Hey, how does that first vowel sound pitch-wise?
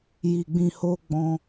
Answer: low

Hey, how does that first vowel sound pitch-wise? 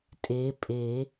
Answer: rising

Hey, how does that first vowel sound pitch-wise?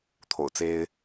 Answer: low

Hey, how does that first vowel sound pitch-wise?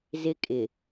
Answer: high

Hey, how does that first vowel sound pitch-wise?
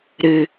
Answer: low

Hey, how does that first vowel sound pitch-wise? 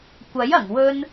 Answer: rising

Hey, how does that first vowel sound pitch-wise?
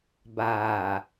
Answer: low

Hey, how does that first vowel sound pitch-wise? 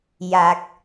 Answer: low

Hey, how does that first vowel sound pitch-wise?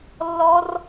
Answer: high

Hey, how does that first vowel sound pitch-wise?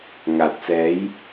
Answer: low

